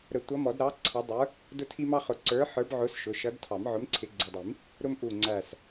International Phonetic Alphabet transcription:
ɾ ə˨˩˦ tʷ ʌ˨˥ m ɔ˨˩˦ d ɾ ɑ˨˥ ǀʰ ɑ˨˥ dˤ ə˞˨˥ | d ʊ˦ tʰ i˦ m ɑ˦ χ ʊ˨˩˦ ǀ ə˞˨˥ ħ ə˞˨˥ b ʕ ʊ˨˥ s ʃ ʊ˩˧˩ ʃ ʌ˨˥ d tʰ ɑ˨˩˦ m ʕ ʊ˨˥ m ǀʰ ɪ˨˥ ɡ͡ǀ ʊ˩˧˩ dˤ i˨˩˦ m | ɾ ʊ˦ m ʔ u˧˩ ŋ͡ǀ æ˧˩ s

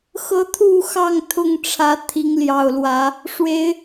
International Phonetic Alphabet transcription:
x ɤ˦ t̪ʰ u˥˨ x ɑ˥˨ ŋ t̪ʰ ʊ˥˨ ŋ ʈ͡ʂʰ ä˨˦ t̪ʰ i˨˦ ŋ l j ɑ˨˩ ʊ̯ l w ä˨˦ | ʂ w e˨˦ ɪ̯

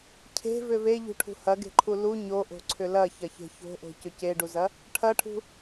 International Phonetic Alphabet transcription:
cʰ e̤ v ʏ v e ʎ ṳ ʈʰ ṳ h ɐ ɡ e̤ ǃʰ u l u ɲ o ʔ o̤ ǀʰ ʏ l ɐ ç ɐ ç e̤ ç o̤ ʔ o̤ c ʏ c e ɖ u z ɐ | ʈʰ ɐ ʈʰ ṳ

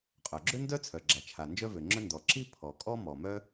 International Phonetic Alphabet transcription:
qʼ œ˩ ɡ͡ǁ ø˥ n d œ˥ t͡sʰ œ˩ ɡ͡ǁ a˩ t͡ʃʰ a˩ n d͡ʒ œ˥ v ø˩ ŋ͡ǁ œ˥ n d ɔ˩ ǁ i˥ pʰ ɔ˩ kʼ ɔ˥ m ɔ˩ m œ˥

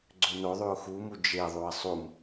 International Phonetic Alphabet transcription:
ɡ͡ǀ ø n o ðˤ y ʊ̯ x u m u d͡ʒ e ðˤ u ɪ̯ sˤ u m

